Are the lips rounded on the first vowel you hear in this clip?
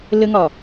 no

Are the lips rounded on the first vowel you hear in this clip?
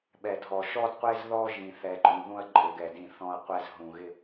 no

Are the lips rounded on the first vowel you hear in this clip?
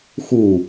yes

